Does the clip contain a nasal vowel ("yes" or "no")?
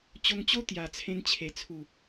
yes